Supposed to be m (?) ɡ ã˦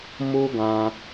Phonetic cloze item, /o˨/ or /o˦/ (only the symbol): o˦